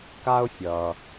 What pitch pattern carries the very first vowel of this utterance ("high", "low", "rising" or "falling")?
high